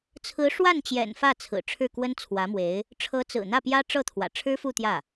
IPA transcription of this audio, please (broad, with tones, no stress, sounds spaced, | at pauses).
t͡sʰ ɹ̩˧˥ ʂ w a˥˩ n t͡ɕ j ɛ̰˨˩ n f ä˥˩ t͡sʰ ɹ̩˨˩ ʈ͡ʂʰ ɻ̩˥˩ k w ə˥ n t͡sʰ w ä˧˥ m w e˧˥ ɪ̯ | ʈ͡ʂʰ ɤ˧˥ t͡s ɹ̩˨˩ n̪ ä˥˩ p j ä˥ ʈ͡ʂ ɤ˥˩ t̪ʰ w ä̰˨˩ ʈ͡ʂʰ ɻ̩˥ f u˥˧ t̪ j ä˥˩